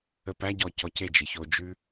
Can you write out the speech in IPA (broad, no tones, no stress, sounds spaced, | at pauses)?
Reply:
ə p æ ɟ ɔ c ɔ c e d͡ʒ e ç o d͡ʒ ʉ